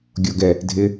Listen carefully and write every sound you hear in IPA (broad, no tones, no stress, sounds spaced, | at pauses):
ɡʲ ɔ ɡ ɛ | dʱ ɪ